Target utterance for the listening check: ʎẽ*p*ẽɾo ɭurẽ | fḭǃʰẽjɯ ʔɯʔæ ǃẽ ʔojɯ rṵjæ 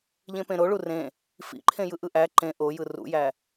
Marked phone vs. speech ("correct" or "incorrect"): correct